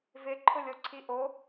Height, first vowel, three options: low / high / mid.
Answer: high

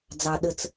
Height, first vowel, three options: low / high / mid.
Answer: low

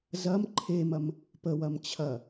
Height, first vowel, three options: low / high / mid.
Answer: low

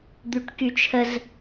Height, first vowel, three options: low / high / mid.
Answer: high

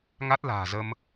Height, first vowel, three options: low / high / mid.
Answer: low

